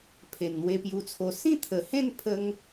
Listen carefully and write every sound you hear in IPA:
pʰ e˨˩ n n̪ w e˧ p j u˧ t͡sʰ o˧ s ĩ˥˧ t̪ʰ ə˨˩ h ẽ˥˧ n pʰ ə˧ ŋ

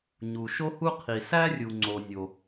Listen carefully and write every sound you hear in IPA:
ɲ u˩ ʃ o˥ h u˥ qʰ i˩ s æ˥ rʲ u˩ ŋ͡ǀ o˩ nʲ o˩

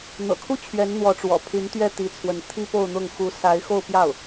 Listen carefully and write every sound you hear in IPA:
n̪ ɤ̰˨˩ kʰ u˥ t͡ɕʰ ɥ ɛ˧˥ n n̪ w ɔ˧˥ ʈ͡ʂ w ɔ̰˨˩ pʰ y˧˥ n t̪ ɥ ɛ˥˩ t̪ i˧˥ t͡sʰ w ə˧˥ n t̪ʰ i˥ p o˥˧ ʊ̯ n̪ ʊ˥˩ ŋ x u˧˥ s a˧˥ ɪ̯ x o˥˧ ʊ̯ p j ɑ˥˩ ʊ̯

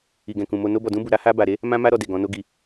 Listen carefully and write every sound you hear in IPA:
i˨ ɡ ɛ̃˨ k ũ˨ m o˧ n o˦ b ɔ˧ d ũ˦ b u˧ ɾ a˦ h a˦ b a˧ ɾ e˦ | m ã˦ m a˦ ɾ ɔ˧ d e˨ ɡ ɔ̃˨˦ n o˦ ɡ i˧

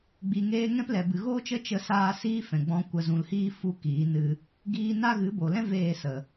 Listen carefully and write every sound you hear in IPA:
ɡ͡b i˨ ŋ eː˧ ŋ ɛ̃˦ p l ɛ˨ b ɨ˨ ɣ oː˦ t͡ʃ ə˦ t͡ʃ ə˧ s aː˧ s iː˧ f ɛ̃˨ ɡ͡b ɔ̃˧ kʷ ə˨ z ũ˨ l h iː˦ f u˦ k iː˨˦ n ɨ˧ | ɡ iː˧ n a˦ ɣ ɨ˨˦ b o˨ l ɛ̃˦ v eː˦˨ s ə˨

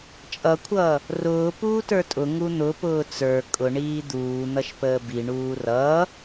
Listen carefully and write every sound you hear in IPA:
t͡ʃʼ ʌ kʷʰ ʌː | r ʊː p uː t ə˞ tʼ ʊ ŋ u n̪ ʊ p ʊː t͡s ə˞ kʼ ʊ ɳ iː d̪ uː n̪ ʌ ʃ p əː b i ɳ uː r ʌː

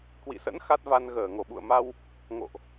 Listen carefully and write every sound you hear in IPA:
k w ḭ˧˨ s ə̰˧˥ n x a˦˥ t̚ v a˧ n ɣ əː˧˩ ŋ o˧˩ ɓ ṵ˧˨ ə̯ m a˧ w | ŋ o̰˧˨ ʔ

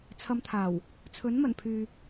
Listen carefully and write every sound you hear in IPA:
t͡sʰ ɐ˧ m t̪ʰ aː˨˩ w | t͡sʰ ɵ˨˥ n m ɐ˨˩ n pʰ yː˨

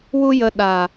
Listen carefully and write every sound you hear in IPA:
w u˦ j ə˧ ɗ a˨

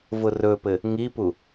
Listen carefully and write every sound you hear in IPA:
v ʊ r ɵ p ɘ | ŋ i p u

